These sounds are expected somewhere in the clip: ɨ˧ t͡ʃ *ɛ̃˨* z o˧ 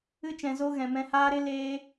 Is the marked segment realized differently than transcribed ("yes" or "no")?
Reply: no